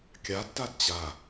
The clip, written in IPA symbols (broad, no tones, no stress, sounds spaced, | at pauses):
kʲ a tː a d t͡ɕ a